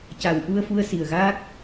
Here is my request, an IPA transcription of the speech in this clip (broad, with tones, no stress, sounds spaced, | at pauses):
c a˨˩ w ʔ u˧ ə̯ f u˧ ə̯ s i˨˩ ə̯ ɣ a˦˥ k̚